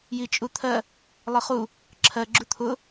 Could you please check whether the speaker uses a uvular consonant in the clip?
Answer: yes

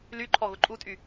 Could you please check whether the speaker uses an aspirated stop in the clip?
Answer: yes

